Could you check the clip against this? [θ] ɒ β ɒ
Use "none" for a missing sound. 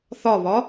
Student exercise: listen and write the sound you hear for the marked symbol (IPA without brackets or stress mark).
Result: θ